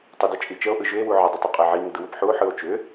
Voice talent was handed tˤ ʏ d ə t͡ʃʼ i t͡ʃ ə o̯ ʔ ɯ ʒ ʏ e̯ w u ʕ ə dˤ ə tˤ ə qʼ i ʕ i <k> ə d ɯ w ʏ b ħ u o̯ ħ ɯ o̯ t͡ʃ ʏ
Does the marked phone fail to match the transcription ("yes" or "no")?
yes